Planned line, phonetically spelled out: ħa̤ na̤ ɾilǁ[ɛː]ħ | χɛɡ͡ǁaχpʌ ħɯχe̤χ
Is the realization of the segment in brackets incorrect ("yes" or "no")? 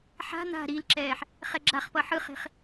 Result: no